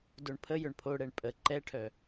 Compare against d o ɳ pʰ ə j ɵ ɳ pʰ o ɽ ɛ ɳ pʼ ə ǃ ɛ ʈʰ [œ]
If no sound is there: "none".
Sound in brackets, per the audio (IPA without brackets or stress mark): œ